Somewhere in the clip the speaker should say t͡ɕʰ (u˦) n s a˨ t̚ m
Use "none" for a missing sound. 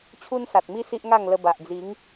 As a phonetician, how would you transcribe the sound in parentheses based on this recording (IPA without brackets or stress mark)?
u˦